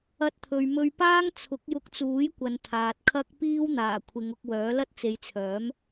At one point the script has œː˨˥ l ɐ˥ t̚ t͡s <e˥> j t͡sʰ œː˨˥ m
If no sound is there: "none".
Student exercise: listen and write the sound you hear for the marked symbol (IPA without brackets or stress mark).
e˨˧